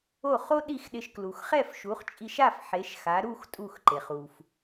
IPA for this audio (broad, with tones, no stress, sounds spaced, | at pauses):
o˥˩ χ o˥ ɗ i˥˩ x ɗ ɪ˧ ʃ k l u˩ x χ ɛ˥˩ f ʃ u˩˥ χ t͡ʃʼ i˧ ʃ a˥˩ f ħ e˩˥ ʃ x a˩˥ ɾ u˥˩ x tʼ u˥˩ x ǃ e˩ χ u˩ f